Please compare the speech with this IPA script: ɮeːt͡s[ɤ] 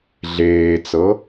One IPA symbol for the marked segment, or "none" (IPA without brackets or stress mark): ɤ